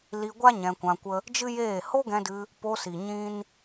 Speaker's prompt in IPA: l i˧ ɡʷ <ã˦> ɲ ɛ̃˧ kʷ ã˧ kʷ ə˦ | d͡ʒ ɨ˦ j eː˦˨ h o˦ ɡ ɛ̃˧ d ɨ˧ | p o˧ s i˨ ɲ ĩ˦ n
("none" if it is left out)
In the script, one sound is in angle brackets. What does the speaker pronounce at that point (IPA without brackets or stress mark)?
a˦